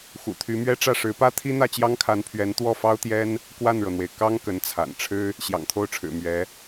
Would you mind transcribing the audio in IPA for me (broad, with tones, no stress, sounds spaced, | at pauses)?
x ṵ˨˩ t̪ʰ y˧˥ m ɥ ɛ˥ ʈ͡ʂ ä˥˩ ʂ ɻ̩˧˥ p ä˥ t̪ʰ i˥ n̪ ä˥˩ t͡ɕ j ɑ˥ ŋ kʰ a˧˥ n pʰ ɥ ɛ˧˥ n t̪ w ɔ˥˩ f ɑ˥ ʊ̯ t̪ j ɛ˥ n | k w a˥˩ n ɻ ɤ˩ n̪ w e˩ ɪ̯ k ɑ˥ ŋ k ə˧˥ n t͡sʰ a̰˨˩ n ʈ͡ʂʰ ɻ̩˥ | ɕ j ɑ̰˨˩ ŋ t̪ʰ o˥˩ ʊ̯ ʈ͡ʂʰ ɻ̩˨˩ m ɥ ɛ˧˥